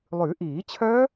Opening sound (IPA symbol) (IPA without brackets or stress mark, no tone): lˠ